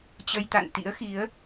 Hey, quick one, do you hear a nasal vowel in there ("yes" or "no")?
no